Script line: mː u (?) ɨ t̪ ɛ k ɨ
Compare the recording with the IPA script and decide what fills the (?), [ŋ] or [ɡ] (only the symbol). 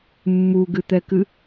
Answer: ɡ